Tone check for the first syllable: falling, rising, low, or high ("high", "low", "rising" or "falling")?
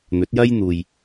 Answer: rising